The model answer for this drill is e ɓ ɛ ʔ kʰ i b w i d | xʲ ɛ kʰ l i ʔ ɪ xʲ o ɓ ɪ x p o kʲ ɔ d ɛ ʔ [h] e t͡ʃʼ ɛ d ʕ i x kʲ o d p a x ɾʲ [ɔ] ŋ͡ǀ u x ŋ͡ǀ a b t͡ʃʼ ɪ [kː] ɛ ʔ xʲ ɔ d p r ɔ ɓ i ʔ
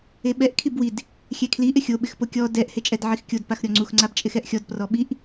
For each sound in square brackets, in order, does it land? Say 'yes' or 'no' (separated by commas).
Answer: yes, yes, no